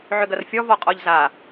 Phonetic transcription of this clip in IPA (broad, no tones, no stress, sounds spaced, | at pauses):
ʕ ʏ ɡ ɐ r fʲ ɔ v ɔ qʼ ɔ ʎ z a